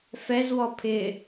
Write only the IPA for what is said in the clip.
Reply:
fɛzwɔ pʰɪ

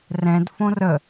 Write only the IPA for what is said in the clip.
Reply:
rɛ̃d fõrə

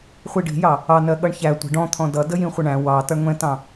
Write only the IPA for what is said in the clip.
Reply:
χʷiɖi̤jɑ | ɑnɜ ɠʌɳçæ tʷə̤ ɖɔ̃ t̪ʰɔ̃dʌ dəjĩχʷəɳæ̃ wɑ tʌɳŋʷɛ̃tɑ̃

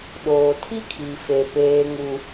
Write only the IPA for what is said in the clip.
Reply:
ɗoː˨tʰi˦kʰi˨ fe˨ peː˦ŋu˦

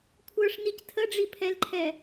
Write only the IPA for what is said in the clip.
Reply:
kʷʰə˞ʂnic tʰəɖ͡ʐipʰɛlǃʰɛ

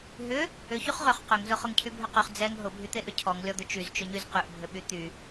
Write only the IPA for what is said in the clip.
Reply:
ɦʏ | ʏ çyχʁʏχ qʏŋzʊ χʊŋcʰybʱʏqyχ d͡zɛŋ ɦʊbʱyt̪eʔʏ cʰɔŋlʲɔd̪ʊ t͡ʃyzt͡ʃʊɲyz qyʔbʱʏɓy t̪y

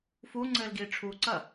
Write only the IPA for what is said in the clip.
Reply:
fu ŋ͡ǀɘːlɡiːʈ͡ʂʰuǀɐ

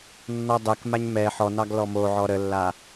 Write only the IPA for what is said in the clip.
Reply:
nːɔdˤɛkmaɲ mɛ ħɔnɑɡ lɔmoʕɔ ɾəlːa

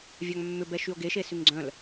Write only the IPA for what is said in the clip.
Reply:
vʲaŋmːʏbɛ ʃyo̯ɡeʃe syŋɡ͡ǀœ̃l

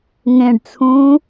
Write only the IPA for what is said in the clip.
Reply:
ŋẽɖt͡sʰũː

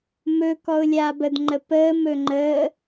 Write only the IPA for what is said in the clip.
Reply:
mɵ kɔʊ̯lʲaːbəd ŋ͡ǃəpəːm ɵŋ͡ǃəː

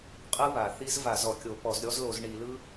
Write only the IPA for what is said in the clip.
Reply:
qʼɯ˦˥βa˩ θi˦˥z va˧˩˧zɔ˩kʲo˧˩˧ pɔ˧˩˧z ɾʲɔ˦˥zlo˧˩˧z ɳi˧˩˧lɯ˦˥

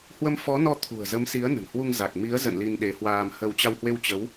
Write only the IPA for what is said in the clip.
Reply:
hwə˧mfɔ˨˦nɔ˧ t̪ʰṳ˨˩ə̯zə˨˦msi˨˦ə̯ nə̤˨˩nhwu˧ŋ za˨˩k̚mi˨˦ə̯zə̰˧˨n li˧nɗe˨˦hwaː˧m hə˧w t͡ɕa˧whwe˧wt͡ɕə˨˦w

